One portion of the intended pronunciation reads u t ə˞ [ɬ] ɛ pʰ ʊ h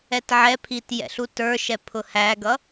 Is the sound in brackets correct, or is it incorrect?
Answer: incorrect